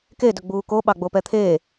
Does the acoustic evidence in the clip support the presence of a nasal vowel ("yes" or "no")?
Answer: no